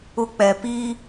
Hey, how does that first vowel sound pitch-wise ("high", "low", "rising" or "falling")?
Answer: high